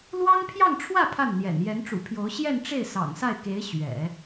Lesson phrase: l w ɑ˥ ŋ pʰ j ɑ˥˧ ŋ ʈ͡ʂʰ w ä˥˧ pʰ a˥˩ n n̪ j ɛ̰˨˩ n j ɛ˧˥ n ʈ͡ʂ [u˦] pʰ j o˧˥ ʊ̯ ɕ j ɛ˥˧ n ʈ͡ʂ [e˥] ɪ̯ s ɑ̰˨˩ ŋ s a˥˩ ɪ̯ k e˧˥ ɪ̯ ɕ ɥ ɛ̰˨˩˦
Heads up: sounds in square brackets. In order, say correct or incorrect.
incorrect, incorrect

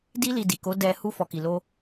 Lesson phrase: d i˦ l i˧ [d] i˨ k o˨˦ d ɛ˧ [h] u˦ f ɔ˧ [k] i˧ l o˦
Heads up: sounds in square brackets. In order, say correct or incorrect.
correct, correct, correct

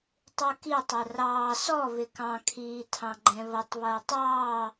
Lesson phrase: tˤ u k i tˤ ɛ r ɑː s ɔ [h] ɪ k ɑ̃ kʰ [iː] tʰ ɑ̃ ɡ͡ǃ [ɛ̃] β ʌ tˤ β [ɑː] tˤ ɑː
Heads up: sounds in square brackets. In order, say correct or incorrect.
incorrect, correct, correct, incorrect

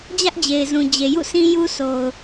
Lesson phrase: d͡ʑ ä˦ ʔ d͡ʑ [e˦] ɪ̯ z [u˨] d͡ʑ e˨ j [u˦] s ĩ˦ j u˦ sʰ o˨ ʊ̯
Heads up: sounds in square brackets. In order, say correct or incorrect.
incorrect, incorrect, incorrect

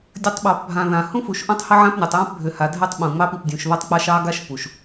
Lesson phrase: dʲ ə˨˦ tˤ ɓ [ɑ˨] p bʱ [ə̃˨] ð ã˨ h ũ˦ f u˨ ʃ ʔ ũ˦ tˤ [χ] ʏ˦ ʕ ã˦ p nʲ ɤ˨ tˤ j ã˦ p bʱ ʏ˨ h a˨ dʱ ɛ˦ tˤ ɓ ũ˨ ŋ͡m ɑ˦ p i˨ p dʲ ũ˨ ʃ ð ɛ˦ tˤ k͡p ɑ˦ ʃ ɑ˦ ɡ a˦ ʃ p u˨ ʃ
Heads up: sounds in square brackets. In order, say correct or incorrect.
correct, incorrect, incorrect

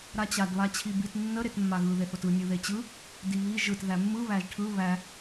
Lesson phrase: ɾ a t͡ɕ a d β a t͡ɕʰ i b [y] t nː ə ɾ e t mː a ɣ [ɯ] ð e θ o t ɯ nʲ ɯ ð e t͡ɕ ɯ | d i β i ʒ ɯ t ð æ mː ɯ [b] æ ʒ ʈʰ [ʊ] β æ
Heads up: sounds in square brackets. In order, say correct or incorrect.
incorrect, correct, incorrect, incorrect

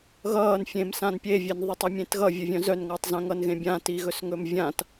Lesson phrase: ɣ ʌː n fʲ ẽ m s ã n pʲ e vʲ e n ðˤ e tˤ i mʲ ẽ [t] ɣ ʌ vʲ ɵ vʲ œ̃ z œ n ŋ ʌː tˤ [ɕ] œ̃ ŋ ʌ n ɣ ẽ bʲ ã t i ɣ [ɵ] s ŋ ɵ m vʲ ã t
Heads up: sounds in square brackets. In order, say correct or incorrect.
correct, incorrect, correct

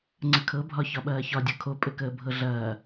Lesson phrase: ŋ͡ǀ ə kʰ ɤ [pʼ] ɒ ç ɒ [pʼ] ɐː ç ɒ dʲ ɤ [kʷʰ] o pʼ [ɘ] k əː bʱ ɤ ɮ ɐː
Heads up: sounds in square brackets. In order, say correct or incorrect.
incorrect, incorrect, incorrect, correct

